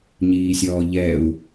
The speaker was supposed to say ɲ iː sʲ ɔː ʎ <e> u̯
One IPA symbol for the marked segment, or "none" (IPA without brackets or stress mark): ɛ